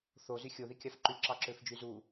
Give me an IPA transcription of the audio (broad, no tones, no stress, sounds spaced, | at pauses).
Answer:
θ o z y xʲ o ð i kʲ ɑ f ǃ y ǁ ɑ ǁ ø f d͡ʒ y z u